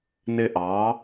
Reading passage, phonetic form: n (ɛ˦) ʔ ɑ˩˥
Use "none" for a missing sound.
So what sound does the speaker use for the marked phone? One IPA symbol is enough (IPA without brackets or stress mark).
ɪ˦